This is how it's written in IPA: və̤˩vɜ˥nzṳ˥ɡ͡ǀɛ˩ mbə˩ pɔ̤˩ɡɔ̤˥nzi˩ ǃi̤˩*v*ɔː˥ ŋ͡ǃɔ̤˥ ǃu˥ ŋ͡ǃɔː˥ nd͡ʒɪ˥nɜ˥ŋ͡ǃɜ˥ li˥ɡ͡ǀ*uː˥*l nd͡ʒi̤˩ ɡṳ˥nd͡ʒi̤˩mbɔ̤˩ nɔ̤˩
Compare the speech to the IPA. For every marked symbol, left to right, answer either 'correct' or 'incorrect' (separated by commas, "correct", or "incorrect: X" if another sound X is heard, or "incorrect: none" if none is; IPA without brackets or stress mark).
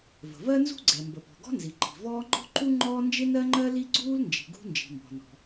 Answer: correct, correct